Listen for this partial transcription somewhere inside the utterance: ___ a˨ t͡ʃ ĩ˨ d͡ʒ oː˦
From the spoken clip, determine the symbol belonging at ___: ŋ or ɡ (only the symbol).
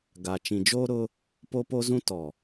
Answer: ɡ